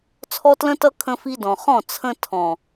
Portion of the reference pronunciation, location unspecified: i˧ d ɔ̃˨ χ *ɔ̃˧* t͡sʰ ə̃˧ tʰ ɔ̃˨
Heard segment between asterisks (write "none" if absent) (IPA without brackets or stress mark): ɔ̃˦˨